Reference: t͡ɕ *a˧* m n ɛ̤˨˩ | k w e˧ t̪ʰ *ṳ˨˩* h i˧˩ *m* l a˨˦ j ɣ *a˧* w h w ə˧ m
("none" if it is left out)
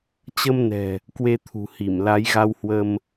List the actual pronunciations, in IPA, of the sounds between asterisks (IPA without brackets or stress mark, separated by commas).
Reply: ə˧, ṳ˨˩, m, a˧